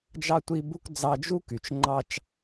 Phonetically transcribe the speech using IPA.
d͡ʒɑ˥tʷi˦bu˥k d͡zɑ˦d͡ʒu˥ky˨t͡ʃ ŋ͡ǃɑ˥t͡ʃ

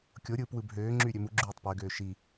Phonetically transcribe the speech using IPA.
kʲoɾʲɯːp wɯbɦøːŋ͡ǁy ɾʲømuɡ͡ǁyːtˤ pøɡøː ʃi

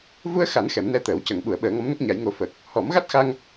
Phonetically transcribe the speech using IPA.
vu˧ə̯xa˨˩˦n xɛ˨˩˦mnɛ˧t̪əː˨˩˦wcə˨˩˦ŋ ɓu˨˩˦ə̯ɓəː˨˩˦ŋɔ˧˥mnə˦˥k̚ ɲa˨˩˦jŋo˨˩˦ fəː˨˩k̚ | hɔ˨˩˦mɣa˦˥t̚xa˧ŋ

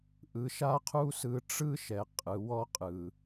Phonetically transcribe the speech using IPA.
ʔɯ˧ʃa˦qʰu˦sɯ˧ ʈ͡ʂɯ˦ʃɛ˨ qʼɯ˨ wɔ˦qʼɯ˨

